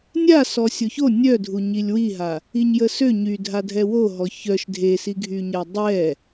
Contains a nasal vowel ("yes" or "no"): no